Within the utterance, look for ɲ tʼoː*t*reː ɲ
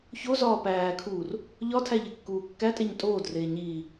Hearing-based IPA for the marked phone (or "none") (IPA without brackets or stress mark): d